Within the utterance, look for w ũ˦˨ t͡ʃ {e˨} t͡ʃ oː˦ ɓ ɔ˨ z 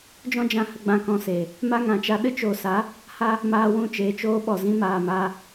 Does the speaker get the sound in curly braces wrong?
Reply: yes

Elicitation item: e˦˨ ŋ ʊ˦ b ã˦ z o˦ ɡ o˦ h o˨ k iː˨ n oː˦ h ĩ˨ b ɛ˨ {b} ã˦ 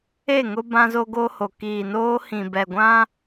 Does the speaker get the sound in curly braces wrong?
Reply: yes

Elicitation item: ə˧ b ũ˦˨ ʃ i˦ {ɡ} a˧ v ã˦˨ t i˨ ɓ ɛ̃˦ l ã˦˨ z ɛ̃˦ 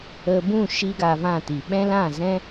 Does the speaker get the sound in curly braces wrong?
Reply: no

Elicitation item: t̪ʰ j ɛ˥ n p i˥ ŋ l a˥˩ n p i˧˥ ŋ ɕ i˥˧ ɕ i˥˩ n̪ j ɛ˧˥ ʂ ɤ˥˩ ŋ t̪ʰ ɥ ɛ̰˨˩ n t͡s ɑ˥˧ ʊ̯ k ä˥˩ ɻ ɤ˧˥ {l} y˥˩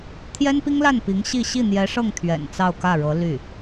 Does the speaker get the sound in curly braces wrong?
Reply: no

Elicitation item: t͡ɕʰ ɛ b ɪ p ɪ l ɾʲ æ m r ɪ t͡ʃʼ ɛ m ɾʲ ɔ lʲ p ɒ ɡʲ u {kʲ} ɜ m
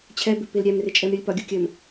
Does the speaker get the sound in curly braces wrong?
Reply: no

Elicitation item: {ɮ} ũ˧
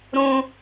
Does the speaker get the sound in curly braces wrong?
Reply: yes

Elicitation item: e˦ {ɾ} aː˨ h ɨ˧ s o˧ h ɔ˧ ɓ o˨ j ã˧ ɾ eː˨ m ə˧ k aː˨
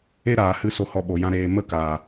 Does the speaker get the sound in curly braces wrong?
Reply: no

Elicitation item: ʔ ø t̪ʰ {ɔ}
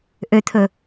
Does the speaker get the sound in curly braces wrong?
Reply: yes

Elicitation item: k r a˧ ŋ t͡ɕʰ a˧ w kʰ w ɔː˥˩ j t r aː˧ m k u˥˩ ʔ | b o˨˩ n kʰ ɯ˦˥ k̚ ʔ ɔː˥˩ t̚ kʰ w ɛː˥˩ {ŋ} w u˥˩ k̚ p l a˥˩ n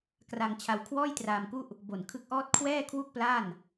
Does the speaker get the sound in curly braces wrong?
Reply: yes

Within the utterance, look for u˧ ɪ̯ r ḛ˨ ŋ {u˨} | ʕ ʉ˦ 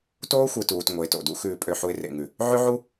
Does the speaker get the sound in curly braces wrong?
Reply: yes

